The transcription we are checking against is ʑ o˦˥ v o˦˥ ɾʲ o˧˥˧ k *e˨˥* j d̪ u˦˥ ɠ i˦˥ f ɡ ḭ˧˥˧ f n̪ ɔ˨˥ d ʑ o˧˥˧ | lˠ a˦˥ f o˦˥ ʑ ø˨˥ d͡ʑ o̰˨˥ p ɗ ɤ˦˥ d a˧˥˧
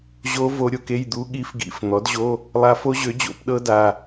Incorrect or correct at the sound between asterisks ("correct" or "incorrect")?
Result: incorrect